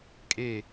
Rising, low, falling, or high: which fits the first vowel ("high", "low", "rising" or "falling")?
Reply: falling